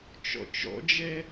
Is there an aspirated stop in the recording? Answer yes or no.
no